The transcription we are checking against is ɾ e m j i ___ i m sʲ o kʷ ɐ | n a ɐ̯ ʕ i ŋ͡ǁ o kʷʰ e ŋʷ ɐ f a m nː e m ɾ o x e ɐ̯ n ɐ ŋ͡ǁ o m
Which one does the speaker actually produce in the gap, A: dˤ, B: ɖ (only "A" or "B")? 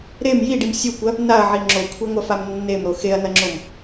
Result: B